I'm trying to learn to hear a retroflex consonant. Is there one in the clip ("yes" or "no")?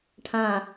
yes